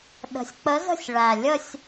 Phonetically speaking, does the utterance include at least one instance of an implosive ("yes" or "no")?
yes